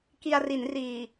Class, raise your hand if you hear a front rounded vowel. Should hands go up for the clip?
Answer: no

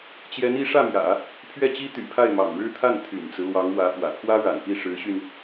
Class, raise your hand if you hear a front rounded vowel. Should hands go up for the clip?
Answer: yes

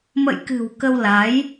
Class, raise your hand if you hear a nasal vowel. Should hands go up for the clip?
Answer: no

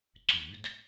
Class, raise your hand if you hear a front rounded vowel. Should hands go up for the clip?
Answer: yes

